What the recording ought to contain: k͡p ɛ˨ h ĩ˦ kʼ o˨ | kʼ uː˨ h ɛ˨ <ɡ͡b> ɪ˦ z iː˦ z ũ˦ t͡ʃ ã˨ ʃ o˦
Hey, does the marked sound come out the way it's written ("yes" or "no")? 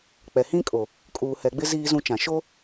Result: yes